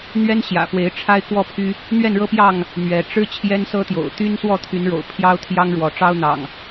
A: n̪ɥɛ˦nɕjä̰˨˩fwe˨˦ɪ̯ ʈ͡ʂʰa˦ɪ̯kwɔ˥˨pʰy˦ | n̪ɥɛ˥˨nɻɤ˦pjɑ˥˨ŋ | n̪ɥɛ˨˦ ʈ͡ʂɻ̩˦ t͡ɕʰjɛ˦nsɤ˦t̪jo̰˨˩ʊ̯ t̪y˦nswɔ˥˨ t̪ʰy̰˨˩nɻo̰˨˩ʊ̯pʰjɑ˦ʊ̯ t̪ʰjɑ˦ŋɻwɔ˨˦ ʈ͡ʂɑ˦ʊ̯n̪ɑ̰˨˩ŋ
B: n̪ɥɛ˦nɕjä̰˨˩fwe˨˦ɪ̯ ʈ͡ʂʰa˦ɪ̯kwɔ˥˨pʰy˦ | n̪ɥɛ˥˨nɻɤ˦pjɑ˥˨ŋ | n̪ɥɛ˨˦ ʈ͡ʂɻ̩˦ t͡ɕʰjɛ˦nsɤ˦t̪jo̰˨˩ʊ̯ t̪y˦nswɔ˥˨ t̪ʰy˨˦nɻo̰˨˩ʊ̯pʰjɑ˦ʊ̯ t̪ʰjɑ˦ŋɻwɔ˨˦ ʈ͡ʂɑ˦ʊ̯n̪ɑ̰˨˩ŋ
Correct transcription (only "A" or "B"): B